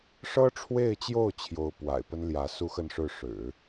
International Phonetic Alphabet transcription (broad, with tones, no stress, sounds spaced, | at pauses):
ʂ ɤ˥ ʈ͡ʂʰ w e˥˧ ɪ̯ t͡ɕ j o˥˩ ʊ̯ t͡ɕʰ j o˧˥ ʊ̯ p w a̰˨˩ ɪ̯ p ə˥ n l j ä˧˥ s u˥ x ə˥˧ n ʂ ɻ̩˥˩ ʂ ɻ̩˨˩˦